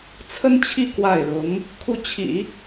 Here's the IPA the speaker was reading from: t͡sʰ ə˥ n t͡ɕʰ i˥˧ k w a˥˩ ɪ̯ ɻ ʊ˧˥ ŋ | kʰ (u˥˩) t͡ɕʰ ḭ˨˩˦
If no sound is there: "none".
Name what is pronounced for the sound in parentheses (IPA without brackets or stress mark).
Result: u˥˩